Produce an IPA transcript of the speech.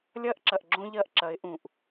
lʲ ɐː˦ ʔ ǁ ɐ˨ ʔ ɡ͡ǁ õ˦ ʎ ɐː˦ ʔ ǁ ɐ˨˦ ɪ̯ ʔ ũ˨ ʔ

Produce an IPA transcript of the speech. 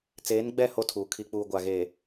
t͡s eː˨˦ n ɡ͡b ɛ˦˨ h o˦ tʰ uː˨ kʰ i˨ k͡p uː˨ ɡʷ a˨ ɣ eː˨

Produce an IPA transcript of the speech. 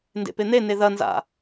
n d ḛ p e n̪ e n e ð ɐ n z a̰

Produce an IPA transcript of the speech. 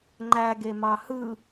ŋ͡ǃ æ ɡ e m ɑ h ɯ

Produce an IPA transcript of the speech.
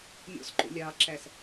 mʲ ɔ̰ s ǃ o̰ lʲ ɑː ǁ æ s

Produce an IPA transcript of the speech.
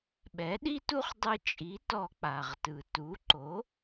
ɓ ɛ˩˥ ɗ i˥ t u˥ χ dˤ ɯ˧ t͡ʃʼ i˩˥ t ɔ˧ k͡p a˩ ʁ t ɯ˩ t u˩˥ ǃ o˩˥

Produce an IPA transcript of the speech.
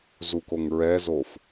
z u k o ŋ ɹ ɛ z o f

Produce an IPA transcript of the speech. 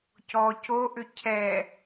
c ɔ c o ʔ ʏ cʰ ɛ

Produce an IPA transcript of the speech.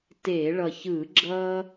t e˧˩˧ ɭ ʌ˨˩ ç ɯ˧˩˧ ɡ͡ǁ ʌ˦

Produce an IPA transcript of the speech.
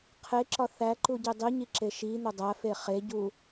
qʰ e ǁ ɒ θ æ ǃ u ɟ i dˤ i ɲ i ǁ e ʃ i n̪ o dˤ æ f e χ e ɟ u

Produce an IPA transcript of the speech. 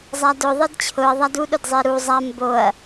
zˤ a d ʊ ðˤ e d t͡ɕʰ ʊ ɐ̯ ðˤ a d u ɗ ʊ d zˤ e ɾ u zˤ a m b o ɐ̯

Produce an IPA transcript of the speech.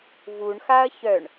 v u ɳ x a ɐ̯ ç œ ɳ

